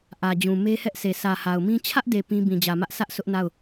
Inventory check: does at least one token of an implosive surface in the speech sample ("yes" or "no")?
no